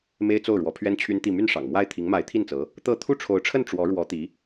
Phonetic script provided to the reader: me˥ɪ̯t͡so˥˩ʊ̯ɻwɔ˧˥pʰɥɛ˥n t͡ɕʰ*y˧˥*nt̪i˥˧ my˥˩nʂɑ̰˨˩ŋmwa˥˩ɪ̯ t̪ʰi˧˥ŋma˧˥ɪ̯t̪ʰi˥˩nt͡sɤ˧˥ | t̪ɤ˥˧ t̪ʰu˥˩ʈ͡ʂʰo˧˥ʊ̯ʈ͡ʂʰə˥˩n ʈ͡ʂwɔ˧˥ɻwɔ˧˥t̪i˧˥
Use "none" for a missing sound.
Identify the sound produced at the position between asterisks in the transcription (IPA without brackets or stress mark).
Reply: y˥